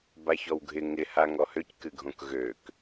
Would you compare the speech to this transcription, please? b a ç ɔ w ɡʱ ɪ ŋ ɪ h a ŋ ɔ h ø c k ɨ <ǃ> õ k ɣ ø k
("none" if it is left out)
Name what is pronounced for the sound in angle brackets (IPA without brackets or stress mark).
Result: ɡʱ